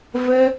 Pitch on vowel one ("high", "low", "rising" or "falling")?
high